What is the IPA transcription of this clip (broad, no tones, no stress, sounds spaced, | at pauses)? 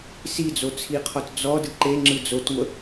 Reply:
s i d͡z o t͡sʰ i qʰ ɔ t d͡z ɔ d ɯ ǃ e ŋ͡ǁ ɯ d͡z o t ŋʷ ə